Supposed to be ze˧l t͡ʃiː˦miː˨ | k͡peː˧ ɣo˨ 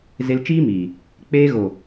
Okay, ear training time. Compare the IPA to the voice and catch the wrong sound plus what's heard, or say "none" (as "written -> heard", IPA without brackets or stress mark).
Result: none